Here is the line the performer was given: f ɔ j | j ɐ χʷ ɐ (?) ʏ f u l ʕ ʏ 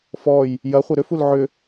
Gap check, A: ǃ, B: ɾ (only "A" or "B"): B